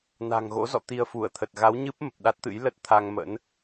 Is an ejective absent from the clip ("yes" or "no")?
yes